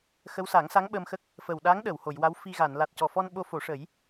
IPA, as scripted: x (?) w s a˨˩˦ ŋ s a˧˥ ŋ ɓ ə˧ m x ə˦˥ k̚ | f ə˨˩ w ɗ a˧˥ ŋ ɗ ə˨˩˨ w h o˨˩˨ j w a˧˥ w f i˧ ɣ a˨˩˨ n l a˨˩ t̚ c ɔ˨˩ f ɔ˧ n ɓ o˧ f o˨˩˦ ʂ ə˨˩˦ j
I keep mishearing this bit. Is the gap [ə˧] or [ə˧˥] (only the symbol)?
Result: ə˧˥